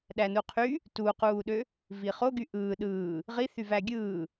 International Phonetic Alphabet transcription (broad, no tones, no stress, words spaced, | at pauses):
ɗænuqʰy | tuquːɗø | viχoɡy ʔɯː ɗɯː | ʁiθyvæ ɡʲɯː